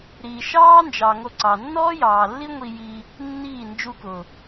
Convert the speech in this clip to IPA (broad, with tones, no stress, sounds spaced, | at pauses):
ɾ iː˨ ʃ ɑː˦ n d͡ʒ ɑ˨ ŋ o˧ ǀ ɑ˨ nː ɔː˦ j ɑː˨ lː i˦ ŋʷ i˧ j i˧ | nː iː˦˨ n d͡ʒ u˧ k ʊ˨